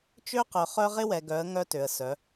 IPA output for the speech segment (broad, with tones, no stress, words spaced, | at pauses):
t͡ʃø˦qœ˨ χœ˦ʁɪ˦wɛ˨ɡœ˨˦ə̯ ŋœ˦tø˨ə̯ sœ˨˦